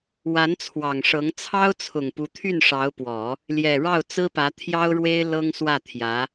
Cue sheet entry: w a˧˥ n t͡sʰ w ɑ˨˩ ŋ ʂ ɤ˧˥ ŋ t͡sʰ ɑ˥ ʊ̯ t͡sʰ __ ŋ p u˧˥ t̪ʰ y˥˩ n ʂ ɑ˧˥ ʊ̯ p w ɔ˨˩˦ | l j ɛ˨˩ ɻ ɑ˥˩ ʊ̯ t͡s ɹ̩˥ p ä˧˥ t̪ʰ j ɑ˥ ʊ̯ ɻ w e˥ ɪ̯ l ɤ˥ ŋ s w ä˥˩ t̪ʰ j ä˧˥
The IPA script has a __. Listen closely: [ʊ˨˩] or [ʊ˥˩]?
ʊ˨˩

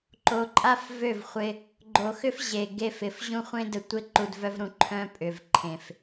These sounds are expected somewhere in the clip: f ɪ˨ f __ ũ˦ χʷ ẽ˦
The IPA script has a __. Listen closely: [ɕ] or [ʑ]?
ʑ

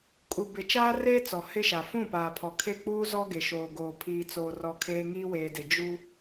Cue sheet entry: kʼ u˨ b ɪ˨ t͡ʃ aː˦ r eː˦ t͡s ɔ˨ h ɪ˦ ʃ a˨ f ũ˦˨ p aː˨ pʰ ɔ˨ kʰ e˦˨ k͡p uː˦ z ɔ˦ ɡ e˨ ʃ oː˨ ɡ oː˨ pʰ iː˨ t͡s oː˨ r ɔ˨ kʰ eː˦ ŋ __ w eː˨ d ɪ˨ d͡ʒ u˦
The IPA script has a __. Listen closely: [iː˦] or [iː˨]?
iː˦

